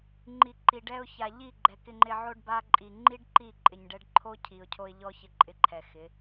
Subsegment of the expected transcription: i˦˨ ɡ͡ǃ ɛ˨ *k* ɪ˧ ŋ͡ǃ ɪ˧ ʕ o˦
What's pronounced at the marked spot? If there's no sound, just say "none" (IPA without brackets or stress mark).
k